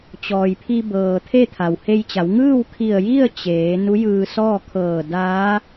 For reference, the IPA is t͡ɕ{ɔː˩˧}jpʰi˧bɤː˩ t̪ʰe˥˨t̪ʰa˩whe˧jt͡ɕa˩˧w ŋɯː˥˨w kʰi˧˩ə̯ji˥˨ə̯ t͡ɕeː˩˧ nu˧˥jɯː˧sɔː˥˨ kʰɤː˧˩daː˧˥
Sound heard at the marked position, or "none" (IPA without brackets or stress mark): ɔː˩